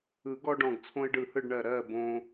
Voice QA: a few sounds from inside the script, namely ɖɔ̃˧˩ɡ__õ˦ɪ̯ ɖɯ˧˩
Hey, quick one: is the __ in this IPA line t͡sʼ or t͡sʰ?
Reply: t͡sʰ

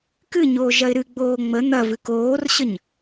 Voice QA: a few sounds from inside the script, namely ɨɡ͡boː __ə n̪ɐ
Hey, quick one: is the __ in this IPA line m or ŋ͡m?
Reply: ŋ͡m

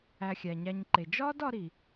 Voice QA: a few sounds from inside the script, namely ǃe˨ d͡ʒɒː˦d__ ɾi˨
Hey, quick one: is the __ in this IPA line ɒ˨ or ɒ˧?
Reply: ɒ˧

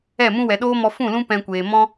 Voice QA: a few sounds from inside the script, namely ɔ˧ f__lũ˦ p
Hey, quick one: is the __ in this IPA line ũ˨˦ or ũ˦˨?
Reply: ũ˦˨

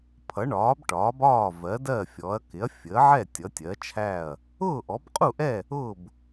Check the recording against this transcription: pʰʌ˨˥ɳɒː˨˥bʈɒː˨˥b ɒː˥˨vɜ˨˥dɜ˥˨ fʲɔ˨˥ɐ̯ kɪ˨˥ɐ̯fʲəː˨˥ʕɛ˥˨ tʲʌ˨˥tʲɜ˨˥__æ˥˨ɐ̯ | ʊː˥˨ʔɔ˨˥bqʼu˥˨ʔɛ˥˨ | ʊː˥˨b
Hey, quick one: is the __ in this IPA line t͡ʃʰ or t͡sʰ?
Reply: t͡ʃʰ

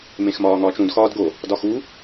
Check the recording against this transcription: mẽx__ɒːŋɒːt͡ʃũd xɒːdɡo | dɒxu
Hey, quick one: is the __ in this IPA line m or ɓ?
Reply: m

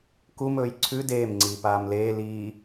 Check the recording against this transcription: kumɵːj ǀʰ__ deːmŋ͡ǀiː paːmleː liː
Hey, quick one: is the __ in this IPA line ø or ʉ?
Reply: ʉ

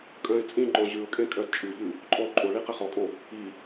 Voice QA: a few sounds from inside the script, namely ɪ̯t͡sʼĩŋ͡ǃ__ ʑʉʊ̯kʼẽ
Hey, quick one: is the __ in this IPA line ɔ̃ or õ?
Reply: ɔ̃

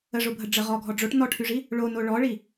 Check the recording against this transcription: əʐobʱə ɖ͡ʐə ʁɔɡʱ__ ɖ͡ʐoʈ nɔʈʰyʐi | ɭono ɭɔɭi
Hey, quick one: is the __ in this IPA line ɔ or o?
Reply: ɔ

